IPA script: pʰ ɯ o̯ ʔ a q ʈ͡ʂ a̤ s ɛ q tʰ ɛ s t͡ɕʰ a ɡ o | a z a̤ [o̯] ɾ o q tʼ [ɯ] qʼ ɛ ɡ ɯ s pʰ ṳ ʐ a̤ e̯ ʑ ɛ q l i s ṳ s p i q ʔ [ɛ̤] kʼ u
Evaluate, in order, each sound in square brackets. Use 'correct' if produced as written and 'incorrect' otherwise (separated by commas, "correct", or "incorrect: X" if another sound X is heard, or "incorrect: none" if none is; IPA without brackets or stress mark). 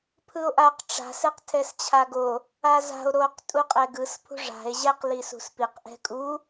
correct, incorrect: u, correct